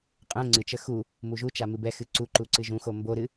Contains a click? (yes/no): yes